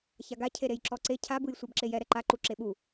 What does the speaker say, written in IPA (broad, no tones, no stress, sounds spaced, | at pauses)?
ç a ɡ a cʰ e ɾ e j ǁ ɔ ǀ e cʰ a b ɯ j sʷ ɛ b ǁ e j ɛ ɾ ɛ ǃ a ǃ u ǁ e ɓ u